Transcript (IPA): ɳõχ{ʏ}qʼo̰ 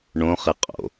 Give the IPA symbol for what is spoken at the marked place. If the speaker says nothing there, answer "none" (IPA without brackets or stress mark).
ɪ